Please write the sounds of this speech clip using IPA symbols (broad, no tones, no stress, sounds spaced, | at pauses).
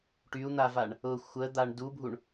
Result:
ʈ y u̯ n̪ a v a ɳ | ʊ xʷ ə d̪ a ɳ d u bʱ u ɳ